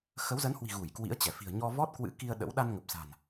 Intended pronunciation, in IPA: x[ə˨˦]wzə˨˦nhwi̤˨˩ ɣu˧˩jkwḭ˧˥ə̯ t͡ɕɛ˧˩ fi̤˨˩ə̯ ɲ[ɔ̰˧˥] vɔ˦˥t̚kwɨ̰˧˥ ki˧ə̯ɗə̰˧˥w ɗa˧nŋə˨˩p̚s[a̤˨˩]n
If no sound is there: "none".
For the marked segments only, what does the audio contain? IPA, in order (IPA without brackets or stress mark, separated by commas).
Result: ə˨˦, ɔ˧, a̤˨˩